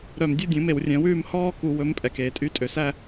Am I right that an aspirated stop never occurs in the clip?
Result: yes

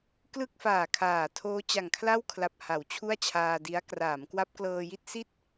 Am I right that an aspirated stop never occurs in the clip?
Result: no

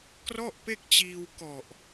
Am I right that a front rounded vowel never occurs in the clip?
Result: yes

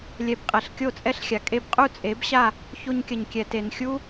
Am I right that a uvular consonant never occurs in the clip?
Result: no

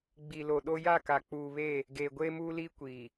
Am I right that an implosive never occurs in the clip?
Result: no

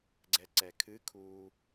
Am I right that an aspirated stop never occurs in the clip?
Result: no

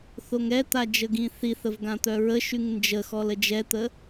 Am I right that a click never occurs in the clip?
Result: yes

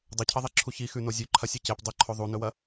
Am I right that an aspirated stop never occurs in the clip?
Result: no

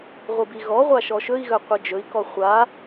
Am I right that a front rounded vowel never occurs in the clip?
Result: no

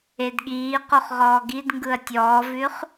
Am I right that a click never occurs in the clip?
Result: yes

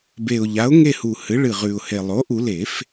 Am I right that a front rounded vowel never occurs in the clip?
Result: yes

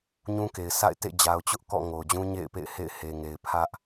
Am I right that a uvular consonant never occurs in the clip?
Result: yes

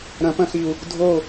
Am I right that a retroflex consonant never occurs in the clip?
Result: yes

